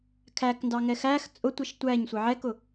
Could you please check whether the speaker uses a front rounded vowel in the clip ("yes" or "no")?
no